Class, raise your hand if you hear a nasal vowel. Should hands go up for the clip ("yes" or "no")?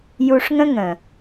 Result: yes